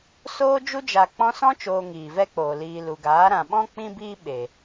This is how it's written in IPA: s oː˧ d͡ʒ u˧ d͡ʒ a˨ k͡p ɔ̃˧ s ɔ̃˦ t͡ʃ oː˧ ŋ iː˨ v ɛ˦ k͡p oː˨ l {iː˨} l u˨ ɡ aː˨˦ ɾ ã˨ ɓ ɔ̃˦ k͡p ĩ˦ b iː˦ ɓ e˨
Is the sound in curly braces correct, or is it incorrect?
correct